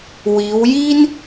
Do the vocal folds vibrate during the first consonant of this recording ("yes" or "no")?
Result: yes